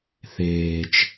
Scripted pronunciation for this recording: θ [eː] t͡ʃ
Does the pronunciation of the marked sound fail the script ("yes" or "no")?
no